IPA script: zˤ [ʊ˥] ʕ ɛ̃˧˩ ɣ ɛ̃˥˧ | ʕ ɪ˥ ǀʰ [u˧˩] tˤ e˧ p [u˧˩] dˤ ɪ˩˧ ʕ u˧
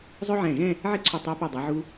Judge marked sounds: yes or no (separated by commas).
yes, yes, yes